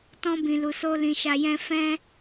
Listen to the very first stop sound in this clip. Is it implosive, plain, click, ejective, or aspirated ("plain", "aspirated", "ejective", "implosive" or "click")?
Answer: plain